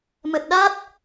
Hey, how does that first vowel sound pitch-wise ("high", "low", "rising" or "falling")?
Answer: low